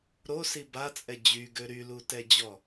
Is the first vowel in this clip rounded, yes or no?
yes